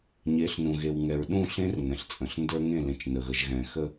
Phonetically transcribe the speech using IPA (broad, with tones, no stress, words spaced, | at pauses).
ɲe˨˦ɬnũ˨ɣe˨wŋɛ˨ɹ ɗũ˦˨ɬẽ˦r ŋɛ̃˨ɬt͡sʼə̃˨ɬndə˞˦ ŋẽ˦˨lẽ˨t͡ʃnə˨ɣə˨ʒ ɣɛ̃˨xə˦